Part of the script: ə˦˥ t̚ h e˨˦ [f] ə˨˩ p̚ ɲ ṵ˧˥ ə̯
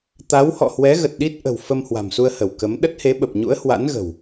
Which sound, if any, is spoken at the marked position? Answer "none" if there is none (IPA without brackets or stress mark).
ɓ